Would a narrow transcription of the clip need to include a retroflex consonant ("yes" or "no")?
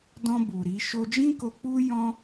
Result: no